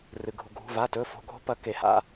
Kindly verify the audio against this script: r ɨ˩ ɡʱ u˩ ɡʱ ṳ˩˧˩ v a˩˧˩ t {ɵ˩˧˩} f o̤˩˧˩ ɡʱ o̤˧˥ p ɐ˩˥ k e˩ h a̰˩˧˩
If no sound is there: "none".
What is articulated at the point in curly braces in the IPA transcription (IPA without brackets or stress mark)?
ɵ˩˧˩